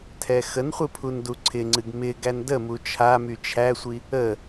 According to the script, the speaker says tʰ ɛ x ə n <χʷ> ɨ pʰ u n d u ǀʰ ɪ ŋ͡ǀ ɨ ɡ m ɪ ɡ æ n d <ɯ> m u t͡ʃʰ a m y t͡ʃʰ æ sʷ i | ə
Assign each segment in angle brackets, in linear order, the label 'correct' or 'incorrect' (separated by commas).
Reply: correct, incorrect